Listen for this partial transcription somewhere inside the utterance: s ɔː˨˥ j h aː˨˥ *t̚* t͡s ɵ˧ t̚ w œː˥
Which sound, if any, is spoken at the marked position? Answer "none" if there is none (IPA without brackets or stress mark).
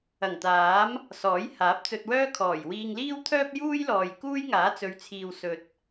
p̚